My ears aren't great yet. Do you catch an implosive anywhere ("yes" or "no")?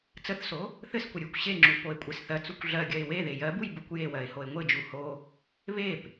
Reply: no